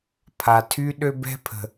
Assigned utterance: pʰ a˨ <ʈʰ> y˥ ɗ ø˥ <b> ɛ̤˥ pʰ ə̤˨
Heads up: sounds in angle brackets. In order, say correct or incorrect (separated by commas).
incorrect, correct